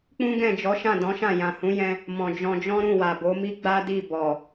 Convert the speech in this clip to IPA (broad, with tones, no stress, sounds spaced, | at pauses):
k͡p ũ˦ ɡ ɛ̃˦˨ d͡ʒ ɔ˨˦ ʃ ã˦˨ d ɔ̃˨˦ ʃ ã˦˨ j ã˨ h ũ˨˦ j ɛ̃˧ | m ɔ̃˨ d͡ʒ ɔ̃˧ d͡ʒ ɔ̃˦ ɾ ũ˦˨ w a˨ b o˨˦ m i˦ ɡ͡b a˦ d i˦˨ b ɔ˨